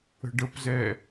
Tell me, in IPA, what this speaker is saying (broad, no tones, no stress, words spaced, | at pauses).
ə̤ɖəpzɛ